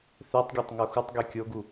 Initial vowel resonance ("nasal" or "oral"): oral